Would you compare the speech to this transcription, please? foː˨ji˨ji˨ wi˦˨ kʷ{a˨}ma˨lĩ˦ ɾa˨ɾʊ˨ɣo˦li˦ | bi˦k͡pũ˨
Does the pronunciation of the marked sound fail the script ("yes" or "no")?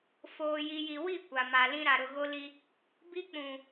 no